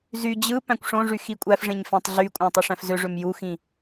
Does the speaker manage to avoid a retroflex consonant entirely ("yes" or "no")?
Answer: no